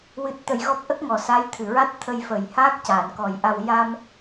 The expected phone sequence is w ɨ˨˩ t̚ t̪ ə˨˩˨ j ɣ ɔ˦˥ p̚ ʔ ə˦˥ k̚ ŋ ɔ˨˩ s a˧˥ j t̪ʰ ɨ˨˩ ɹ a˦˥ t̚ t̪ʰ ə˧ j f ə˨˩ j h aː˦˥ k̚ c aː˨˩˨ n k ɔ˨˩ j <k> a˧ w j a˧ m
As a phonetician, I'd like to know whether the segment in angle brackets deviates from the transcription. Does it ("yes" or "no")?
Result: yes